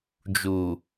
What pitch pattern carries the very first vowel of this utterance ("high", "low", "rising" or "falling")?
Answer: low